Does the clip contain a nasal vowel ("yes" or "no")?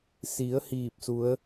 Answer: no